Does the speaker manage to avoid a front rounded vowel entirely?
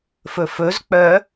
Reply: no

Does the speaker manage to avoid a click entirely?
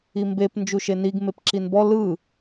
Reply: no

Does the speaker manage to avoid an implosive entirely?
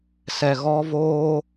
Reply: yes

